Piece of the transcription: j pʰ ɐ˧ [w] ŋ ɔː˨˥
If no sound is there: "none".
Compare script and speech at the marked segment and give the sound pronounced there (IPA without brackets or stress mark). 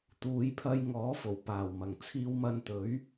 j